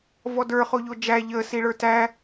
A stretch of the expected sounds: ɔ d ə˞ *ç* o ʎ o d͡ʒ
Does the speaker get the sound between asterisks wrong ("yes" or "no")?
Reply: yes